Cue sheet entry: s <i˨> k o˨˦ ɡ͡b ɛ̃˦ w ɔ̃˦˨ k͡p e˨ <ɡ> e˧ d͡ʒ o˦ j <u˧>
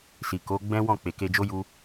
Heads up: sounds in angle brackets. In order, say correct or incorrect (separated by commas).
correct, incorrect, incorrect